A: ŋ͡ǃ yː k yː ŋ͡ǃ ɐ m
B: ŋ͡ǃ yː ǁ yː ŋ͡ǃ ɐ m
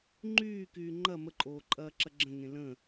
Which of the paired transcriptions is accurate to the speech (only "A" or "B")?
A